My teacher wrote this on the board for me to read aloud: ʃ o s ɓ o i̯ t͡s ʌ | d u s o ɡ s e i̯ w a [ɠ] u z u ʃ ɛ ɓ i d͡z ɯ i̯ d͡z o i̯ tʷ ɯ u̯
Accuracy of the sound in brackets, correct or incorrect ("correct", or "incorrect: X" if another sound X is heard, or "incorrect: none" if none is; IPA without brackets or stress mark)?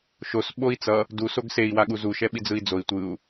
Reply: correct